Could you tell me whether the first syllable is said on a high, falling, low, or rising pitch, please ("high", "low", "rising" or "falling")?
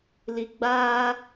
low